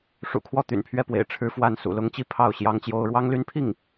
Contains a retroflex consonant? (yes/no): yes